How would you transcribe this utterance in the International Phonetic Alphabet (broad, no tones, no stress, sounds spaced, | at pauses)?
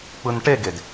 k͡p ɯ n ʈ e ɡ e d